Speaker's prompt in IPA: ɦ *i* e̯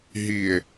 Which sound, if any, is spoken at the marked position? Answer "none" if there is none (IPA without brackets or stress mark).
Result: i